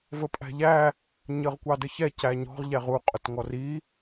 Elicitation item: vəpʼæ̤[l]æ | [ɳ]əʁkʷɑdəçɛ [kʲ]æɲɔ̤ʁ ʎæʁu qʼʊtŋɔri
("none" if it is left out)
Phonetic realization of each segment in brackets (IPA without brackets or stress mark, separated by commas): ʎ, ɲ, c